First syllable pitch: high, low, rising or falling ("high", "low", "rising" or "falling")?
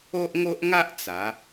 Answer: high